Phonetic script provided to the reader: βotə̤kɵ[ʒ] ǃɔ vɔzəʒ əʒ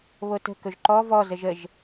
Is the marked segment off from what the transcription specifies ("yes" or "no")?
no